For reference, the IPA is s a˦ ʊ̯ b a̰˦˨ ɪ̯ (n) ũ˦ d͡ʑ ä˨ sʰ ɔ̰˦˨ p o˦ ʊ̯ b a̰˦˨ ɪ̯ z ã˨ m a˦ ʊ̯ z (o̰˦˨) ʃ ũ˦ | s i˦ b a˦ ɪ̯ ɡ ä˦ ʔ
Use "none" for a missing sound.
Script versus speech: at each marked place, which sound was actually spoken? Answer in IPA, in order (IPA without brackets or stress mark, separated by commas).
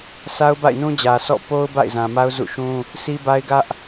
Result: n, ṵ˦˨